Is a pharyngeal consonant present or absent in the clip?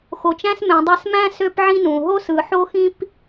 present